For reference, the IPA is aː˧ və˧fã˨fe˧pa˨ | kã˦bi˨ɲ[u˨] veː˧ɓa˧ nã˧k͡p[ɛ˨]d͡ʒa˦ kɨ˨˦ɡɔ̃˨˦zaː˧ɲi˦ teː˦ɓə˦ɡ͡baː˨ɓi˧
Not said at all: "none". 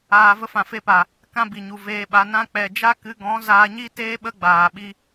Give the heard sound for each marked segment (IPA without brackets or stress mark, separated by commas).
u˨, ɛ˨